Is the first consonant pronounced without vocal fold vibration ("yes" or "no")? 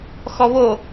yes